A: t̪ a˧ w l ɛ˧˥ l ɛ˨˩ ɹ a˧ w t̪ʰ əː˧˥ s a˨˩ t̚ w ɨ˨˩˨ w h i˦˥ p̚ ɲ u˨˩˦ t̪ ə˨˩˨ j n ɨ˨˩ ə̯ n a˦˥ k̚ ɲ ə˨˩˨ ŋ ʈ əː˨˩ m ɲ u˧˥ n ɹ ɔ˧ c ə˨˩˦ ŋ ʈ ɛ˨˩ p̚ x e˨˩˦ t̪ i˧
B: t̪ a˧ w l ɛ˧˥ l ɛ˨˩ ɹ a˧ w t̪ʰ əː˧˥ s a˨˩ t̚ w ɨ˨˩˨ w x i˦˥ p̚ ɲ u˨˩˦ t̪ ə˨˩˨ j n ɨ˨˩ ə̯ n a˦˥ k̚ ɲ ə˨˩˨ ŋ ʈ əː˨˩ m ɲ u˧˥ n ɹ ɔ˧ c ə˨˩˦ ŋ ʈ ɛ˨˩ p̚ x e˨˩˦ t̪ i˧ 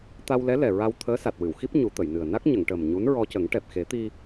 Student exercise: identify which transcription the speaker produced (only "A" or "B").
B